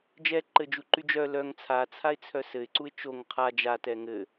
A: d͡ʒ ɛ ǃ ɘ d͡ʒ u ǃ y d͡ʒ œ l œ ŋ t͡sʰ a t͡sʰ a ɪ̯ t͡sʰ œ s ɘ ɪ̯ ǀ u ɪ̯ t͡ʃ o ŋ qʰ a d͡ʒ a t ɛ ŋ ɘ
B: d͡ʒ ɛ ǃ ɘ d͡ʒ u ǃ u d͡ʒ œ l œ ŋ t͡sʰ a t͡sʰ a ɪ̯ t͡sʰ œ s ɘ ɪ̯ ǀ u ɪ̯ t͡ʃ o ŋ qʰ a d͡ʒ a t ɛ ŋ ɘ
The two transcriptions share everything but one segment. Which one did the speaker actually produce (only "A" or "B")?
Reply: A